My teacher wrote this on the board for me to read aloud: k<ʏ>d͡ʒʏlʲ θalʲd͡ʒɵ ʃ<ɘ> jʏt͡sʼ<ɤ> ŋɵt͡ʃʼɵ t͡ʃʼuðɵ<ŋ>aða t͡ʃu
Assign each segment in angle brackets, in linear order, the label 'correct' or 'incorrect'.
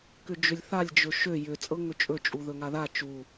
correct, incorrect, correct, correct

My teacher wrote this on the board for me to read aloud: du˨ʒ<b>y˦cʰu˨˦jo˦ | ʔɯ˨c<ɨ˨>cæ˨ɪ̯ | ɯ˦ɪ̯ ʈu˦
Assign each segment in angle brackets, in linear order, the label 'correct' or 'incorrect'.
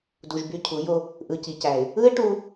correct, incorrect

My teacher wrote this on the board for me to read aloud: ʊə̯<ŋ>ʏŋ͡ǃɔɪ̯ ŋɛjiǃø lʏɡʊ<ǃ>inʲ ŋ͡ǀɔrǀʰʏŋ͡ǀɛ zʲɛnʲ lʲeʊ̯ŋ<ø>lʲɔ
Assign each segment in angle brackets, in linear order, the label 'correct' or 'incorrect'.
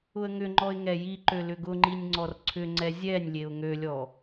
correct, incorrect, correct

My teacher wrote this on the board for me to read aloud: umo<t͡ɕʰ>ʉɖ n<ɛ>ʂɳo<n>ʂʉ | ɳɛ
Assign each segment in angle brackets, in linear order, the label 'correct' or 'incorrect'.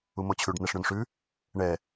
correct, correct, correct

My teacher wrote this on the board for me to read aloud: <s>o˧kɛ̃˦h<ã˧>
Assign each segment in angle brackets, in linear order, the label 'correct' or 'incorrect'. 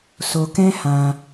correct, correct

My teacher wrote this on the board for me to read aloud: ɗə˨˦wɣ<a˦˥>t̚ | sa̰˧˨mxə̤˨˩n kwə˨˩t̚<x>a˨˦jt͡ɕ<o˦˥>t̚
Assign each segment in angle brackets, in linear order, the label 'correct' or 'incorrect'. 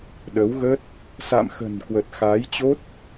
incorrect, correct, correct

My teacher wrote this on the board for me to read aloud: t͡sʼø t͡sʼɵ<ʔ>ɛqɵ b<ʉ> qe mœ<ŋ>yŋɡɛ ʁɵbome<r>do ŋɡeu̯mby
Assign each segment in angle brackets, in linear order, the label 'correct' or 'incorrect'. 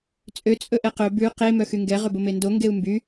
correct, correct, incorrect, incorrect

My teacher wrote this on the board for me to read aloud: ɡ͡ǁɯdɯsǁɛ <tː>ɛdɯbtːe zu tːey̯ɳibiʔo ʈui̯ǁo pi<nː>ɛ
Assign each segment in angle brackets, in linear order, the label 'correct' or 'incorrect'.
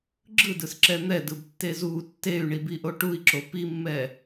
incorrect, incorrect

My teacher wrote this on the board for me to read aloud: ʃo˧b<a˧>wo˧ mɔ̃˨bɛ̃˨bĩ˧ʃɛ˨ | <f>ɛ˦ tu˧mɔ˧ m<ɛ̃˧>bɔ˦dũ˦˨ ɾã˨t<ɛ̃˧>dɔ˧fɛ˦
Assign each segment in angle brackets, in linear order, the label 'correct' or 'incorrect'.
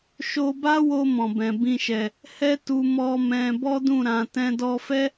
incorrect, incorrect, correct, correct

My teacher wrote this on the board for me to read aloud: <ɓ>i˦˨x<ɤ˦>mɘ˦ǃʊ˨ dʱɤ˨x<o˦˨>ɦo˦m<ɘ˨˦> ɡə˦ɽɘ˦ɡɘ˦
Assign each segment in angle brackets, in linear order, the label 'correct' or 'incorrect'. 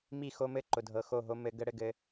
incorrect, incorrect, correct, correct

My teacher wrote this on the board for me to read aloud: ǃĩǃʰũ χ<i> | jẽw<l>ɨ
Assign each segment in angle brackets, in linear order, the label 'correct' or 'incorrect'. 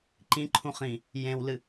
incorrect, correct

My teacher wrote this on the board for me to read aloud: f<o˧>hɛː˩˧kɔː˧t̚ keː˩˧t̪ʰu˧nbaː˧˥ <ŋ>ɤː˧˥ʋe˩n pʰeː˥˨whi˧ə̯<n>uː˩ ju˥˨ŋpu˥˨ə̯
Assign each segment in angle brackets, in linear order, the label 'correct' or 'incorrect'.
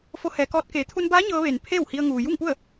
correct, incorrect, incorrect

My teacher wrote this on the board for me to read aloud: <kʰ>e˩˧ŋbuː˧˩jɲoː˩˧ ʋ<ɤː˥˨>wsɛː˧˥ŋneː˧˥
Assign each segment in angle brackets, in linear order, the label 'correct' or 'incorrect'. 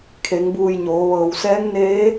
correct, incorrect

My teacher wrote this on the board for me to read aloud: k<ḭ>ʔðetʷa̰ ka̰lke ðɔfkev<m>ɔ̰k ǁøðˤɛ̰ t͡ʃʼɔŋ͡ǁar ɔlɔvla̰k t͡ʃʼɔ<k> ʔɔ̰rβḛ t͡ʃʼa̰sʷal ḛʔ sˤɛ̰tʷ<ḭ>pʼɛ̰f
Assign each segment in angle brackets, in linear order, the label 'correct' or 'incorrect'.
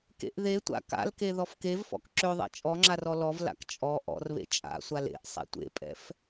incorrect, incorrect, incorrect, incorrect

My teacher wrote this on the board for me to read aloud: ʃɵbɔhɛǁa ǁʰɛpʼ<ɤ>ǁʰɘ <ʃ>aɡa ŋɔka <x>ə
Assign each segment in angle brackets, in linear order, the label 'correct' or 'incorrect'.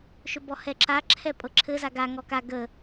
correct, incorrect, incorrect

